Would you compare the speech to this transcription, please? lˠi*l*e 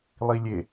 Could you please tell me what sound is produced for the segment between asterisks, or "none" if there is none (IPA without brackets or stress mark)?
lʲ